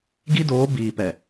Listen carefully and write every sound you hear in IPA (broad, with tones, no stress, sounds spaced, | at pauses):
ɡ i˦ d oː˨˦ b iː˨ p ɛ˨